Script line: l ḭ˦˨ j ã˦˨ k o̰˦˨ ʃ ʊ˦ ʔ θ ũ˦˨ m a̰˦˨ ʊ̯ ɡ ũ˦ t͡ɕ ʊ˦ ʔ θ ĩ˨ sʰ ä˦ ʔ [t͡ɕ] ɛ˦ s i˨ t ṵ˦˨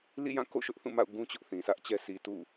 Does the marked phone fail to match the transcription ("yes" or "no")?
no